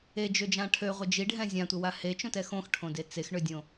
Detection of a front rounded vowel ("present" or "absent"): present